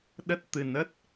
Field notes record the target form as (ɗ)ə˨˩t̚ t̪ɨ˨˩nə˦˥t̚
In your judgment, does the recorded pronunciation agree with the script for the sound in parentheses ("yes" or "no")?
yes